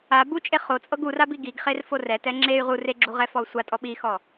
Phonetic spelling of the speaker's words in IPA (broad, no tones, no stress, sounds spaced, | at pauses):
a b u t͡ʃʼ e χ o t͡sʼ ɤ ɡ u r a b i ɡ i ɡ χ e r f o r ɛ t ɛ ŋ͡ǁ e y̯ ʁ u r e ɡ͡ǁ u ʁ ɛ f ɔ u̯ sʷ a tʼ ɔ ɓ i x ɔ